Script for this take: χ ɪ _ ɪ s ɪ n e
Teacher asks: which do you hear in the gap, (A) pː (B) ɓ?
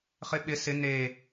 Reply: B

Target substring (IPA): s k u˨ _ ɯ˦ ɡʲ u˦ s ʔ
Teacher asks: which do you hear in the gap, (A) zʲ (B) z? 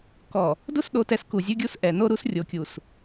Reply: A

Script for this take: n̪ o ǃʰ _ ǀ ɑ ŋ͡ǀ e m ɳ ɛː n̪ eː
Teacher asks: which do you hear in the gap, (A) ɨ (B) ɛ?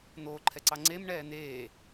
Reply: B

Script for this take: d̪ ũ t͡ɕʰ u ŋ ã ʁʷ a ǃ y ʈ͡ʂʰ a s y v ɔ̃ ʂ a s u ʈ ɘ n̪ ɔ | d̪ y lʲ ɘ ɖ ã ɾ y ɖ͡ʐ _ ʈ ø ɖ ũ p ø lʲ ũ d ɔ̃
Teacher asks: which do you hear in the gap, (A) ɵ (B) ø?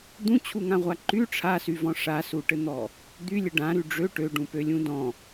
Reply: B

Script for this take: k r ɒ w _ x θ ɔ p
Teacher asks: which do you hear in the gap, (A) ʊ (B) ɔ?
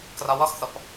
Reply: B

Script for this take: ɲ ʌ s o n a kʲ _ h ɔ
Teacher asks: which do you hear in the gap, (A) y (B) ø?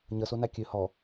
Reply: B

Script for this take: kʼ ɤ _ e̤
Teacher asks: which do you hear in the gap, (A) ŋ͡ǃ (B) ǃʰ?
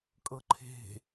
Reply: B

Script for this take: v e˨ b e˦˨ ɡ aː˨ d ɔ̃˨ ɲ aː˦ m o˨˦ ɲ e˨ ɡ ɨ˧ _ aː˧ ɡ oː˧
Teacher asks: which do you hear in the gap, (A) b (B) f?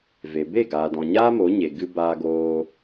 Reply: A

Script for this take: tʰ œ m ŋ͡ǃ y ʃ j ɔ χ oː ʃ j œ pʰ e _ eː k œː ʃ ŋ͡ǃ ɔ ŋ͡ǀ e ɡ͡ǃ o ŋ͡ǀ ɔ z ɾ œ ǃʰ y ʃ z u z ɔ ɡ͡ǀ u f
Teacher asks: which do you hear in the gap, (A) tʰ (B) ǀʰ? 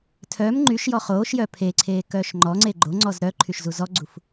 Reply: B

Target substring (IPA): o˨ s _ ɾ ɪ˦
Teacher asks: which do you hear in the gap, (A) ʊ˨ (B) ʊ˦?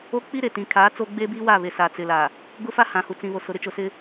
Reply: A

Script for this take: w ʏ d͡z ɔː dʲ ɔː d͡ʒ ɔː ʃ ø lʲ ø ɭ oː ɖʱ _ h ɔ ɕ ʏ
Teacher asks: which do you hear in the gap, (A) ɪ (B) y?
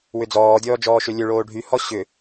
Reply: B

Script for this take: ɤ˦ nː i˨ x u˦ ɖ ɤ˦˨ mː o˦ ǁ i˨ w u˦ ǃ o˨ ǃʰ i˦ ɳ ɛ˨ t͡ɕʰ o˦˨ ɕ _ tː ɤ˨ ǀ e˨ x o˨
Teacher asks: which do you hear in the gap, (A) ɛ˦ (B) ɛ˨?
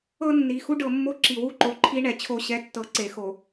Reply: A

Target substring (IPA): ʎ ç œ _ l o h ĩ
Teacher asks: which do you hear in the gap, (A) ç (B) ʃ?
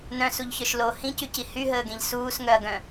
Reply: B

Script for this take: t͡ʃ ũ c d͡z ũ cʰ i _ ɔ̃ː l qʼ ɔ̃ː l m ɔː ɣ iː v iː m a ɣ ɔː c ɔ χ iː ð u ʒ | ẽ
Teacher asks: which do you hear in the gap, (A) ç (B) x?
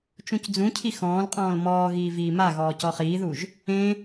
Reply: B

